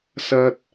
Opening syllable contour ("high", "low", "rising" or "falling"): high